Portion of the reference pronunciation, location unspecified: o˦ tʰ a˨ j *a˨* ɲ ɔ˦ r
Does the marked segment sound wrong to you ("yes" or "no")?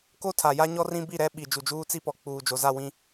yes